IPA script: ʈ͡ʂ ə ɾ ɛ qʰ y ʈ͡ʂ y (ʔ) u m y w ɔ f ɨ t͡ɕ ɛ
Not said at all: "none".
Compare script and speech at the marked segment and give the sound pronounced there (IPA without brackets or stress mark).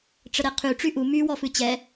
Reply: ʔ